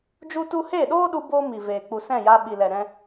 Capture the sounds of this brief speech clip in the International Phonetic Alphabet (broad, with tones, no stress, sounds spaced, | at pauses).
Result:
d͡ʒ u˦ t u˦ h eː˦˨ ɗ oː˦ ɗ u˧ b oː˦ m i˨ v eː˨ k͡p u˨ s ɛ̃˦˨ j a˧ ɓ i˨ l ɛ˨ ɾ ɛ̃˧